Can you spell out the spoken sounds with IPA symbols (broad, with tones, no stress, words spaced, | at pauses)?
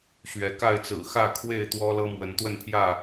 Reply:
ɕɥɛ˨˦ka˥˨ɪ̯t͡sɹ̩˨˩ xä˥˨kʰwe˥˨ɪ̯t̪wɔ˦ lɤ˦mwə˨˦nt̪wə˥˨npʰjä˥˨